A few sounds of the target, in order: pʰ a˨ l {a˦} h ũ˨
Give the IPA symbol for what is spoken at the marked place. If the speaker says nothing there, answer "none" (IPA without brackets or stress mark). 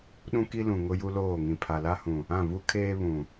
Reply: a˦